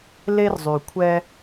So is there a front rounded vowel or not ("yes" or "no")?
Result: yes